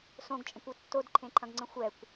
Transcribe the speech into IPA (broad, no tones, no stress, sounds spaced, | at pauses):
s õ ɡ t͡ʃʼ ə̃ kʷ o tː o d ǃʰ ẽ ǃʰ ɐ̃ ɡ ŋ͡ǀ ə̃ xʷ ɛ kʷ